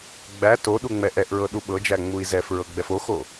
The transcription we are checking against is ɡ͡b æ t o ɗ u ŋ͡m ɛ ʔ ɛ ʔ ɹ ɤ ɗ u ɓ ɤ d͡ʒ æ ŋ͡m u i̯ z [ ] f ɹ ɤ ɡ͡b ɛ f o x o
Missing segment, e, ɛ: ɛ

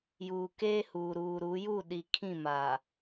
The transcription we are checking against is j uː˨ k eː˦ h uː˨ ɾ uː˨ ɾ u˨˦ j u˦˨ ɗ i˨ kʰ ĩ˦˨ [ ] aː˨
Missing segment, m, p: m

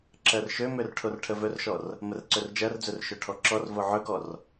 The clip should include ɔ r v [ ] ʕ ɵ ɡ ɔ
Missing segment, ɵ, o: o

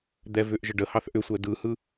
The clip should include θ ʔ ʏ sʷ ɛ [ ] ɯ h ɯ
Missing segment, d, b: d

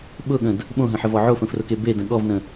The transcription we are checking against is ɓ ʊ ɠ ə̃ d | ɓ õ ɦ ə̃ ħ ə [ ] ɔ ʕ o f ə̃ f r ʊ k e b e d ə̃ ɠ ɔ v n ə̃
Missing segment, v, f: v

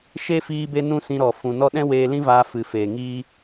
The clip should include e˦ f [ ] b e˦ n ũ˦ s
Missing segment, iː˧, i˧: iː˧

